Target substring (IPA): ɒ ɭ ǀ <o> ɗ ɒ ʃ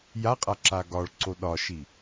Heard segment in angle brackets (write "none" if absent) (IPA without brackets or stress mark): o